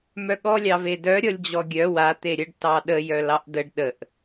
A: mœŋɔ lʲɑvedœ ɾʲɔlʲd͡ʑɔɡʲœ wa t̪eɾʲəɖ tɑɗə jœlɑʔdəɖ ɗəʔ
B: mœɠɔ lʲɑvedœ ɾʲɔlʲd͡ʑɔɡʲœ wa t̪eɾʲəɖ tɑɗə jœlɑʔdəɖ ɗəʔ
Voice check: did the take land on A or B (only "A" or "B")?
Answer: B